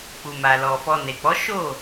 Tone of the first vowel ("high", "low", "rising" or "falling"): low